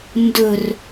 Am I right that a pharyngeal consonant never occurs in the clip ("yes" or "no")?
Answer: yes